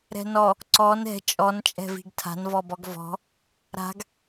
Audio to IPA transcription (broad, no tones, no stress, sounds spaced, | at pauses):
ɾ ɛ̤ n ɔ | ǀ ɔ n ɛ̤ t͡ʃʼ ɔ n t͡ʃʼ ɛ̤ v i̤ ɡ tʰ a̤ n v ɔ b ɔ ɡ v ɔ̤ | ɾ a̤ ɡ